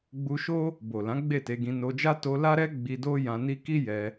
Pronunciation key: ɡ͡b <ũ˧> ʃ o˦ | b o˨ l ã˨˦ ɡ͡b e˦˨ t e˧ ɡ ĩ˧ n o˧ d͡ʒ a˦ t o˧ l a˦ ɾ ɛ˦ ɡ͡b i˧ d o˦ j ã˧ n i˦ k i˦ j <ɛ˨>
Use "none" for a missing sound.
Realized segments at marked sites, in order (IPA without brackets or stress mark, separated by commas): u˧, ɛ˧